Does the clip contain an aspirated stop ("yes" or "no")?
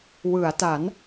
no